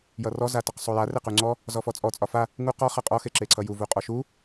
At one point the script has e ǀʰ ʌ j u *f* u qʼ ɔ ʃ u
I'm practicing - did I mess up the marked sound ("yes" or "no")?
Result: yes